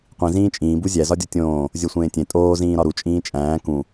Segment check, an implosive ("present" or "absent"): absent